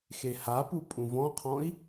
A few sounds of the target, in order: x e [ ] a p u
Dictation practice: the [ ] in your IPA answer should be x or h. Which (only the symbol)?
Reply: h